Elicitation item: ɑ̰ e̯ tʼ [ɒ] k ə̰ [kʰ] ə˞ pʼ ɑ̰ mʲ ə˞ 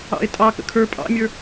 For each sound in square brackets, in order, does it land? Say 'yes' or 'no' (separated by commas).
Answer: no, yes